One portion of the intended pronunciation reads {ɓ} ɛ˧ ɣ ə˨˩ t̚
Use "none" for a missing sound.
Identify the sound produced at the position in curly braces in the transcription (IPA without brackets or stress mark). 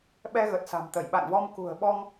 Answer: ɓ